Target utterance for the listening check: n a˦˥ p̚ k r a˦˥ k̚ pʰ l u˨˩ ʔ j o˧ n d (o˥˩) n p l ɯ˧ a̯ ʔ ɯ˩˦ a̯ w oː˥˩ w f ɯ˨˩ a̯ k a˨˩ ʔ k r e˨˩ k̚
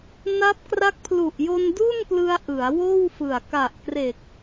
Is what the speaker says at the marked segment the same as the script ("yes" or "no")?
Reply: no